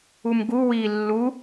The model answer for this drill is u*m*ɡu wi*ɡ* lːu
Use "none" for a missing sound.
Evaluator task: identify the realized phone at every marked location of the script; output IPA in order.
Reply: m, none

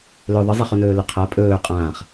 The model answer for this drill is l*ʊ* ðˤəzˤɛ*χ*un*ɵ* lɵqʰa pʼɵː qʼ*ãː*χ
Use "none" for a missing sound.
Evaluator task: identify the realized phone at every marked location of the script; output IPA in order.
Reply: ɵ, χ, ɵː, ãː

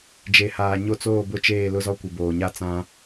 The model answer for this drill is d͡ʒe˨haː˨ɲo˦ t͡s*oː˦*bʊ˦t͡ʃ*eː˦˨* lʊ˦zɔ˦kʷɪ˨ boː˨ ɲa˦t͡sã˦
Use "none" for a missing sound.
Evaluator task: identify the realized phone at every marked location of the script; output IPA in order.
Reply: oː˦˨, eː˦˨

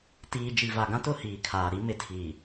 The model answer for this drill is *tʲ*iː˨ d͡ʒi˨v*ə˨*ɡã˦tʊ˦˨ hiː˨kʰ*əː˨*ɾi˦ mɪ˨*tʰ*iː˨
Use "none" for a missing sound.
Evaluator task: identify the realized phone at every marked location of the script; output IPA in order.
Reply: t, a˨, aː˨, tʰ

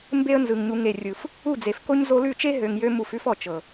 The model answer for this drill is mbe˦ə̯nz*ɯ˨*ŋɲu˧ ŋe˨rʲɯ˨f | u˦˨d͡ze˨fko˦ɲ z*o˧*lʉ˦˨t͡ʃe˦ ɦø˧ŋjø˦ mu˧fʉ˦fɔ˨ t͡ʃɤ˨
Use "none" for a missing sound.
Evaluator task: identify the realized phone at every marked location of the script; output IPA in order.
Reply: ɯ˨, o˧

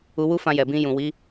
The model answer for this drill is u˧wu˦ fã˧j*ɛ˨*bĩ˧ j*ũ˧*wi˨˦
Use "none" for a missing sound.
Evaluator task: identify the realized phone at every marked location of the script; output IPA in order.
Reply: ɛ˨, ũ˨

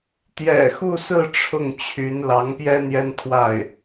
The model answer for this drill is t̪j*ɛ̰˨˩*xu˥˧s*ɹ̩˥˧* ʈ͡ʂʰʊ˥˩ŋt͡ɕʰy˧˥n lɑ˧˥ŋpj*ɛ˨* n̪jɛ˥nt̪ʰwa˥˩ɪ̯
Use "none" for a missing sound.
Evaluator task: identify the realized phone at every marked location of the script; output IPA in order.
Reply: ɛ̰˨˩, ɹ̩˥˧, ɛ˥

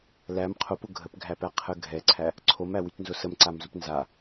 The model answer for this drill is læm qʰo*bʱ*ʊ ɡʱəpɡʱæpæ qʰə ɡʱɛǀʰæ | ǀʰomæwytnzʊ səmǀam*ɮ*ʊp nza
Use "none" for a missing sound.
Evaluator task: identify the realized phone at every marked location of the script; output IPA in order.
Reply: p, z

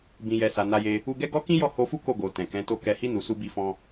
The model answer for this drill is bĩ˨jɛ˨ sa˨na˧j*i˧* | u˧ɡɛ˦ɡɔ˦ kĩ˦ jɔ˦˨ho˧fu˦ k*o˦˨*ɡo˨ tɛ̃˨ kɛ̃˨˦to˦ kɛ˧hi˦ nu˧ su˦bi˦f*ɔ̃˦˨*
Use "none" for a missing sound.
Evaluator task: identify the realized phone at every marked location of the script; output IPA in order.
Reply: e˧, o˦˨, ɔ̃˦

